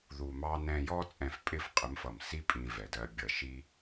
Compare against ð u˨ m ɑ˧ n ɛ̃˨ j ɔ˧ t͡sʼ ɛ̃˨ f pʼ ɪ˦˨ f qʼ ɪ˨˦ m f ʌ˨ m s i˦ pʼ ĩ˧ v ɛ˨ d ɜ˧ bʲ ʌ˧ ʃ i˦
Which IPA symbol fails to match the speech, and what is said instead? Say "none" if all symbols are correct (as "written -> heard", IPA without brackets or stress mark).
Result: none